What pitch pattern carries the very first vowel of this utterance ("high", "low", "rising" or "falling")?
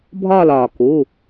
falling